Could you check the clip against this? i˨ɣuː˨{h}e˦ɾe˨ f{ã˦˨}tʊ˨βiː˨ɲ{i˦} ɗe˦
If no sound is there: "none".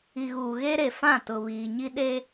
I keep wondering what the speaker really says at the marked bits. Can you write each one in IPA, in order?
ɣ, ã˦˨, i˦

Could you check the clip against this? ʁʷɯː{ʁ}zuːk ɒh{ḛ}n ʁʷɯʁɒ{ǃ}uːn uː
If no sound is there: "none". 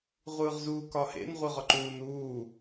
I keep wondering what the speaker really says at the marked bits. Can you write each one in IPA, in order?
ʁ, ḛ, ǃ

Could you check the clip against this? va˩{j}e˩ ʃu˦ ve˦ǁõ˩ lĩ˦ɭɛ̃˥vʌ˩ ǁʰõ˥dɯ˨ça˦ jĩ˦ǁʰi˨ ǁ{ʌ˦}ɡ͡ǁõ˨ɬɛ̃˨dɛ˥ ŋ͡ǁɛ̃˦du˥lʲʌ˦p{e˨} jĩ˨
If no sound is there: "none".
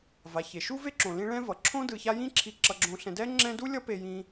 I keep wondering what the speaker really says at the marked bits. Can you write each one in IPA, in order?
ç, ʌ˨, e˨

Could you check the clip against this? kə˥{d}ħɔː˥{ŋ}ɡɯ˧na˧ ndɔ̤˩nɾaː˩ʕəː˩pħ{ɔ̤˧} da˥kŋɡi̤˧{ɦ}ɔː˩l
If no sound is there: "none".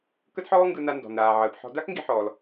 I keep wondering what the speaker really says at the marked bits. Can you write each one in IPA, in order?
d, ŋ, ɔ̤˧, ħ

